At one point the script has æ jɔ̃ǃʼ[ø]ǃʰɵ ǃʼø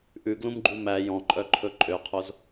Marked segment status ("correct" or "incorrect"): incorrect